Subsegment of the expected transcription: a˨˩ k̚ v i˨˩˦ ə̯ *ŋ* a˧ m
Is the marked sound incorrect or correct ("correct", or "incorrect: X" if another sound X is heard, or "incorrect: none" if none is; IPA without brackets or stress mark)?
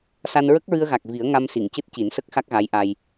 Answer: correct